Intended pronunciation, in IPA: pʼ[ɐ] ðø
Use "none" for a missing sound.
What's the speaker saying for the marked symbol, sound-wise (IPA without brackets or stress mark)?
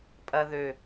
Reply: ɐ